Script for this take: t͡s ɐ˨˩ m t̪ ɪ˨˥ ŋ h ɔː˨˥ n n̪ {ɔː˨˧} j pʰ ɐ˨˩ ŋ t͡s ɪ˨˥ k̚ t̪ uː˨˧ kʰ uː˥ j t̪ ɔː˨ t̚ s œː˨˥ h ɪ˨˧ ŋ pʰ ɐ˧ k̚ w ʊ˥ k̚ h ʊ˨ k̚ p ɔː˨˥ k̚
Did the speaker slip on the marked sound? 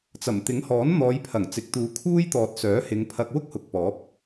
no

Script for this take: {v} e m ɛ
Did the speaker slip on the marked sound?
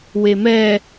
yes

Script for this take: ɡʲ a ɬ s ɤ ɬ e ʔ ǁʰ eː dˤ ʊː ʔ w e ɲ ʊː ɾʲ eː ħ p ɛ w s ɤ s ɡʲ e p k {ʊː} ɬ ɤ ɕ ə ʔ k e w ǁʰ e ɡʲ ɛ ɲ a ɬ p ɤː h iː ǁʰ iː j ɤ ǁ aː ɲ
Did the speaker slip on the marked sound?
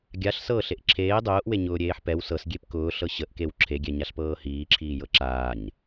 no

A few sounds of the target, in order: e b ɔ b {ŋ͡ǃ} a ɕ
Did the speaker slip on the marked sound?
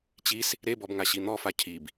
yes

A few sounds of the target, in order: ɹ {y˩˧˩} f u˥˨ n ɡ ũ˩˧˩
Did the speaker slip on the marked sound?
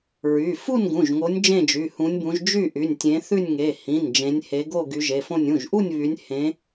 no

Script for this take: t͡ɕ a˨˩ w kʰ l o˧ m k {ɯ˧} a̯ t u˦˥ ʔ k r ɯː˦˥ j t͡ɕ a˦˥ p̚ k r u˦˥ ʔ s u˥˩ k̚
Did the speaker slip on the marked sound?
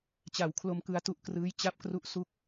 no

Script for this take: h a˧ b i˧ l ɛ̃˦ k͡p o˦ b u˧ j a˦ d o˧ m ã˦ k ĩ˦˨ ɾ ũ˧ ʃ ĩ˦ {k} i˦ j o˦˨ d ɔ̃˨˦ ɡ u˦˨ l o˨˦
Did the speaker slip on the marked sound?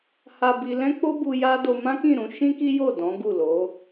no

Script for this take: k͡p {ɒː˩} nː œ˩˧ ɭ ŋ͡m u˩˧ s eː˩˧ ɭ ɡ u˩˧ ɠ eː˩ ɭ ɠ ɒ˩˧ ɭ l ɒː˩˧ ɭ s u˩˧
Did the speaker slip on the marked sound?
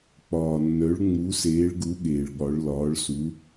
no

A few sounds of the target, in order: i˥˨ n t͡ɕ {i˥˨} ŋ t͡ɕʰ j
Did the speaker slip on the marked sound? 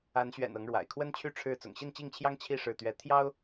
no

